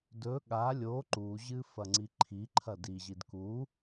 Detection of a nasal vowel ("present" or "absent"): absent